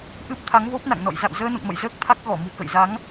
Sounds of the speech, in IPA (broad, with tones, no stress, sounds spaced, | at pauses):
ʔ ɨ˦˥ p̚ t̪ʰ a˨˦ ŋ v o˦˥ p̚ n a̰˧˨ ŋ n ɔ̰˧˨ j z a̰˧˨ w z əː˧ n o̰˧˨ ŋ m ə̰˧˨ j z əː˦˥ k̚ t̪ʰ a˦˥ k̚ ɣ ɔ˧˩ m ṳ˨˩ k ə̰˧˨ j z a˨˦ ŋ